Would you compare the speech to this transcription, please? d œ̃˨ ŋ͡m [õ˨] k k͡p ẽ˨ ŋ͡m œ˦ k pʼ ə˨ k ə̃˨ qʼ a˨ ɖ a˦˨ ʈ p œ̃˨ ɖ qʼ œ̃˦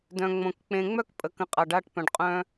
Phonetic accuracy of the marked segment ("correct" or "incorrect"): correct